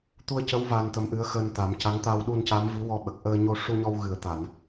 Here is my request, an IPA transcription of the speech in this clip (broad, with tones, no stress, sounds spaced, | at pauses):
t̪ u˧ ə̯ c ə˧˥ w v aː˧ n t̪ ə˧˥ m ʔ ɨ˧˥ ə̯ x əː˧ n t̪ a˨˩˦ m c a˧˥ ŋ t̪ aː˧ w ɗ u˧ n c a˧˥ m v i˧˥ w ɔ˧ ɓ ə˨˩ k̚ ʔ əː˧ ɲ o˧ ʂ u˧ ɲ ɔ˧ w ɣ ɨ˨˩˦ ə̯ t̪ a˨˩˨ n